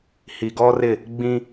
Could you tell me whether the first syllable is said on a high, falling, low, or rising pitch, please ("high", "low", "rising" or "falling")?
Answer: low